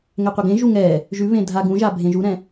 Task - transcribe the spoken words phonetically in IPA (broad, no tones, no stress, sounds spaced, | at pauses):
ŋ ɛ qʷ ə ɡ ẽ ʒ u ŋ ɛ | ʒ ʉ β ẽ dʱ a ɡ ũ ʒ a bʱ ẽ ʒ u ɾ ɛ̃